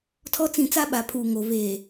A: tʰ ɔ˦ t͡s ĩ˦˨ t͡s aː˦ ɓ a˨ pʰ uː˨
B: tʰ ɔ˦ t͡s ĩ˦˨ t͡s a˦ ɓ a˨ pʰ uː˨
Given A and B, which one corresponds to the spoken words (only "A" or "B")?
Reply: B